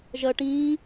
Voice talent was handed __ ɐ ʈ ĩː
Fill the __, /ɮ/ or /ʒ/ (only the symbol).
ʒ